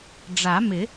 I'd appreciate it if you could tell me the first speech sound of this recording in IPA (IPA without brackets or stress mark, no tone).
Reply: ɖ͡ʐ